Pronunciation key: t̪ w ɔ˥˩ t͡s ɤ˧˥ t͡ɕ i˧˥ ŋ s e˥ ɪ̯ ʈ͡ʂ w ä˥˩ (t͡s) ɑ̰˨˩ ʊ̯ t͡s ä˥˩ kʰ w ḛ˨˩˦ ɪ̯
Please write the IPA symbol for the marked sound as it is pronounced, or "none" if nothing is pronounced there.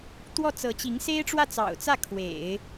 t͡s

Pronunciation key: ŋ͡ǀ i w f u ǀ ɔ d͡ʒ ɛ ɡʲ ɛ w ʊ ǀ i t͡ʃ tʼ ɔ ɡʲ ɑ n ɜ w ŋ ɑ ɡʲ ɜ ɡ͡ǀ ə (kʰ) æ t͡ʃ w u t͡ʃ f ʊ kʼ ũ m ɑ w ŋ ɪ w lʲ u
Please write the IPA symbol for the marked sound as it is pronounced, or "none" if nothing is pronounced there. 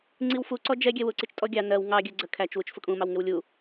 kʰ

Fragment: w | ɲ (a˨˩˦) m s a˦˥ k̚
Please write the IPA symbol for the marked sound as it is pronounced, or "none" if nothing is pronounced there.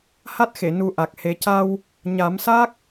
a˨˩˦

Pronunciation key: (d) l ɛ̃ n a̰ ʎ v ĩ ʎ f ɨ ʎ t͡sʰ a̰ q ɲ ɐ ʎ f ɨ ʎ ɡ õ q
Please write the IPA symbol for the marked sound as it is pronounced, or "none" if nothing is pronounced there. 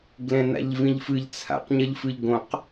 ɡ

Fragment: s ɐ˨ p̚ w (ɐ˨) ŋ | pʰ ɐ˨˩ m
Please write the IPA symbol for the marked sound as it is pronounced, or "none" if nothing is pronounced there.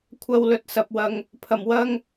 ɐ˨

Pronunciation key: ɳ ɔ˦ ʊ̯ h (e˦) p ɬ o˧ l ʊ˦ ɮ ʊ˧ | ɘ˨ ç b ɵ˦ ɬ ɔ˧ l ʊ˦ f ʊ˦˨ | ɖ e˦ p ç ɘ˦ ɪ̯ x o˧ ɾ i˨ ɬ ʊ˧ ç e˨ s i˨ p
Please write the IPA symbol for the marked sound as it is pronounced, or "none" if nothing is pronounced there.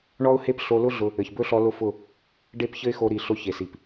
e˦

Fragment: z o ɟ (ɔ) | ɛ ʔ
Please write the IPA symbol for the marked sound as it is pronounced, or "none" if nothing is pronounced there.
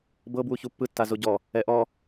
ɔ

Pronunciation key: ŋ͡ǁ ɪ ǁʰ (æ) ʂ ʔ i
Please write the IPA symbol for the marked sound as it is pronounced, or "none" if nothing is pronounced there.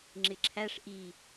æ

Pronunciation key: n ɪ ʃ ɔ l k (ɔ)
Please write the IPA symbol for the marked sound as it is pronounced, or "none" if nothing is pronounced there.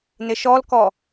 ɔ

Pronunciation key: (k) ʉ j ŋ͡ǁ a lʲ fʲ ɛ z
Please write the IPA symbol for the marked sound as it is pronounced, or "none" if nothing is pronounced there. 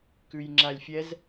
k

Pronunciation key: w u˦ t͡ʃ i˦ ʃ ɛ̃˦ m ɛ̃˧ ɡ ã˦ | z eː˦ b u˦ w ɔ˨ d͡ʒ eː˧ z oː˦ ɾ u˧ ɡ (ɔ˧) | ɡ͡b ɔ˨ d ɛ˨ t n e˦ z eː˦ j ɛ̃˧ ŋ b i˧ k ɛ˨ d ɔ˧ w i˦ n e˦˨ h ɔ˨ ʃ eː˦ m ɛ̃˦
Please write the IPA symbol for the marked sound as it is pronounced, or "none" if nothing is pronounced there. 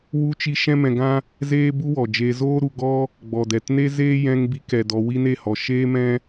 ɔ˦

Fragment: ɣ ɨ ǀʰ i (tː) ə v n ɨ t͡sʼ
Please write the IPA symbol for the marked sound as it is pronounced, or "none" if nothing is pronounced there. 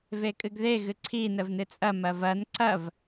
n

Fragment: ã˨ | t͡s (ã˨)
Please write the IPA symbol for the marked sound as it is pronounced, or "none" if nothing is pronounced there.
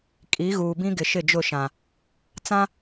ã˦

